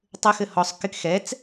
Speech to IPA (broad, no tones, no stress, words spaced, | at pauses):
tˤɘxɘ hɔsˤ kɪk xɛt͡s